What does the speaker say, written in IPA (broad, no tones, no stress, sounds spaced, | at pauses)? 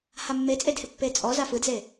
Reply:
h a mː e t͡sʼ e d h ɪ pː e t͡sʼ ɔ z a f ɯ d z e